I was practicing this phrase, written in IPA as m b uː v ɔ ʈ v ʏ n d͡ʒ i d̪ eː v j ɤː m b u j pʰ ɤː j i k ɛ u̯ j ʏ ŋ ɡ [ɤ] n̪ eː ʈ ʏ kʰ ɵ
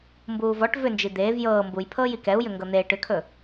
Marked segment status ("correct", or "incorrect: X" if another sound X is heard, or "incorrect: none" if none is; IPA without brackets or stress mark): correct